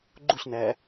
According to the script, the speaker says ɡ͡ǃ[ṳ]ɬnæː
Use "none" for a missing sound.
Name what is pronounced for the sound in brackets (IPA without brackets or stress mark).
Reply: u